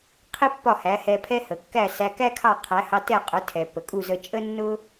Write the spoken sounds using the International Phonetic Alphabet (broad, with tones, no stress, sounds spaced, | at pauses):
qʰ i˥ pː ɒ˥˩ h æ˩˥ h ɛ˧ pʰ ɛ˥ h ə˩ kː æ˥˩ s æ˧ k æ˥ kʰ ɑ˥˩ qʰ æ˩˥ h ɑ˧ t ɛ˥˩ qʼ ʊ˩˥ tʰ ɛ˩ pː ə˩ kʼ u˥˩ z ə˧ t͡ʃʼ ə˥ nː ʊ˥